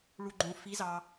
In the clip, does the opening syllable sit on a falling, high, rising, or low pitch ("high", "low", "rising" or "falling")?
low